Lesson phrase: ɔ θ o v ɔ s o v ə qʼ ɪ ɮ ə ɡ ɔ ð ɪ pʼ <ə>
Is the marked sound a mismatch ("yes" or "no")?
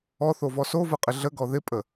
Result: no